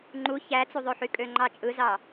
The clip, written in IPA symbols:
ŋ͡ǃ u ç æ t͡s u ðˤ ø ħ y kʼ ø ŋ͡ǃ ɑ t͡ʃʼ ɯ z ɑ

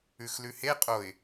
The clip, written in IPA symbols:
ʉ x l ʉ h e qʼ o ɪ̯

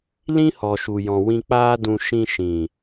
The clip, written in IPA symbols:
l ĩ˦ h ɔ˨ ʃ u˨ j ɔ̃˨ w ĩ˧ k͡p aː˦ d ũ˧ ʃ ĩ˧ ʃ ĩ˨

